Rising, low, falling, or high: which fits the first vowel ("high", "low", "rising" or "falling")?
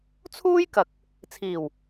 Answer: high